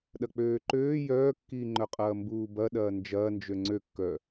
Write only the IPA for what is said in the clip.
ɗ ɐ k͡p øː ǃ øː j œː kː iː ŋ͡ǃ œ qʼ ɐː m b uː b ɐ ɗ ɐː n d͡ʒ ɐː n d͡ʒ ø ŋ͡ǀ ø kː œ

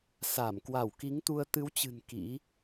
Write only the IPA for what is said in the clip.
s a˧˩ m k w a˧˩ w k i˨˦ ŋ t̪ u˧ ə̯ t̪ ɨ˨˦ w t͡ɕ ɨ̤˨˩ n k ḭ˧˥

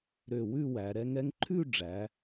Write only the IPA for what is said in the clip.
ɾ ø˧˩ w ʉ˥˧ w æ˩˧ ɾ ɛ˧ ŋ ɛ˧ ŋ ǃʰ ʉ˥˧ ɖ͡ʐ æ˩˧

